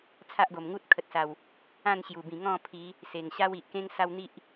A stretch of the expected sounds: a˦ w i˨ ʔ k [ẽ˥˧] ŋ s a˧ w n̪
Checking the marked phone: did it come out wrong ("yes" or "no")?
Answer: yes